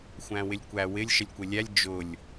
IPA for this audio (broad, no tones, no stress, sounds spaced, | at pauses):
xʷ æ̃ w ɪ lʲ kʷ æ w ɪ lʲ ʃ ə lʲ kʷ ɪ lʲ æ lʲ d͡ʒ ʊ lʲ